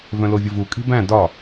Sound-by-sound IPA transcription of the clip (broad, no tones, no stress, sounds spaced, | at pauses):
v œ̃ l o vʲ ə v u kʼ i̤ b æ̃ d ɒ